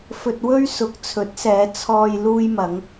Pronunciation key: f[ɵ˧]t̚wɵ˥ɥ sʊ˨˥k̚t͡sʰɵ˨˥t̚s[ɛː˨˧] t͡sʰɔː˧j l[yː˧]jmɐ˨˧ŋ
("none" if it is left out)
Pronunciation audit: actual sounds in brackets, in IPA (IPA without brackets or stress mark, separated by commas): ɵ˧, ɛː˨˧, uː˧